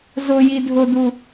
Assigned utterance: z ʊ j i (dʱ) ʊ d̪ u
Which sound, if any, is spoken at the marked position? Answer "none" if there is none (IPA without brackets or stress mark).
dʱ